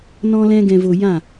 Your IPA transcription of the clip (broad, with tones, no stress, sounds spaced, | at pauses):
n ɔ̃˦ l ɛ̃˦ ɡ ɛ̃˧ v o˧ j ã˦˨